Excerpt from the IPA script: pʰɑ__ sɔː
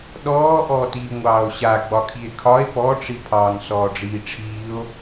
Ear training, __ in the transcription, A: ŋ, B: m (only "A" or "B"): A